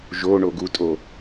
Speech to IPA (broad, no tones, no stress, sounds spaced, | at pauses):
ʒ o ɳ o ɡ u tʼ o